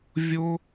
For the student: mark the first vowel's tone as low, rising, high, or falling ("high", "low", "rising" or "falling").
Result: high